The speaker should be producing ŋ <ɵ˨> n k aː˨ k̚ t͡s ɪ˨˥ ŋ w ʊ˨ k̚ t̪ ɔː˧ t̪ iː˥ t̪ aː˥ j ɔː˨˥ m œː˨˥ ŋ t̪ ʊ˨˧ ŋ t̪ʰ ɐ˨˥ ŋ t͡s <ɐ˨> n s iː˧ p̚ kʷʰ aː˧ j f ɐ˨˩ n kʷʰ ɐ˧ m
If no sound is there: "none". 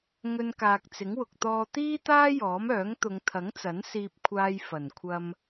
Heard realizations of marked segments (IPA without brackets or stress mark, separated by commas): ɵ˧, ɐ˨˥